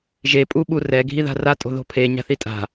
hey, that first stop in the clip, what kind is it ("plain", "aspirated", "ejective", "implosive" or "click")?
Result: ejective